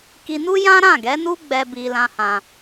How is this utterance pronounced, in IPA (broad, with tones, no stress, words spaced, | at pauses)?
ki˧nu˦ jã˦ɾã˦˨ɡɛ˨˦nu˦ ɡ͡bɛ˦ bi˧ lã˦hã˧